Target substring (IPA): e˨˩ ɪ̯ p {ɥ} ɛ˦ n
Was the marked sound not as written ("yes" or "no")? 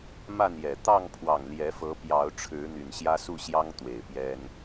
yes